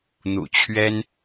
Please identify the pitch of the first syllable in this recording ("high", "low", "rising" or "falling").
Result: low